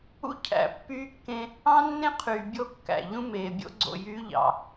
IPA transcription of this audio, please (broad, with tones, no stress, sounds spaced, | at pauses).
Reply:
ṵ˦ cʰ æ̰˨ pː yː˦ kː ẽ˦ | ɑ̃˦ nː ẽ˦ qʰ yː˨ bʲ o˦˨ kː æ̰˨ ʎ ũ˦ m eː˨ bʲ o̰˦ ɡ͡ǀ o̰˨ j yː˦ ʎ ɑ̰˨